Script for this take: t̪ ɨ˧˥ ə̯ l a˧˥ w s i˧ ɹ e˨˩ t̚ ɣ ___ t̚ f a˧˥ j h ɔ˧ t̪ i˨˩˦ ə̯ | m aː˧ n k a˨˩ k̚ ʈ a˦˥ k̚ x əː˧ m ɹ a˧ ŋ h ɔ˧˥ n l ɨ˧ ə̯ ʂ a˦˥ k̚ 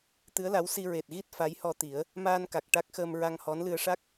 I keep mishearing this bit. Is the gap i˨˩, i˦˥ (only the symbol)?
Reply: i˦˥